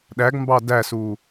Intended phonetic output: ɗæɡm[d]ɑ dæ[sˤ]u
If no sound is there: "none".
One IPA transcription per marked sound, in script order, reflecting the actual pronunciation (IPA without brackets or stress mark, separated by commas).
b, s